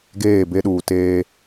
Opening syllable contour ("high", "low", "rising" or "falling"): falling